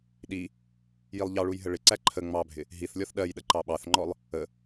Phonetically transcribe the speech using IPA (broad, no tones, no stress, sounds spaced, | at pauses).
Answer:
ɗ i | j i lˠ ʎ ɑ ɭ u j ɦ ə ɭ ɪ ǀ æ ǃʰ ə ŋ͡m ɑ bʱ ɪ | ɦ i θ lʲ ɔ θ ɗ ɜ j ɗ ə ǃ ɑ ɓ ɑ θ ŋ͡ǃ ɔ lˠ | ə